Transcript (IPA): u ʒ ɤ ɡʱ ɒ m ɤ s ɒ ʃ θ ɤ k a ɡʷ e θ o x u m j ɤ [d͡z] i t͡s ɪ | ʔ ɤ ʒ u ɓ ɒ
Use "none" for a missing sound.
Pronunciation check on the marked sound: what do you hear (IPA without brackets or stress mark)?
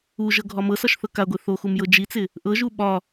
d͡ʒ